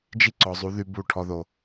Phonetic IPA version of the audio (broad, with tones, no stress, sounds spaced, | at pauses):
d͡ʒ i˦ ǀ ɔ˨ zˤ u˨˦ ð y˦ b u˦˨ ʈʰ ɔ˨ ð o˨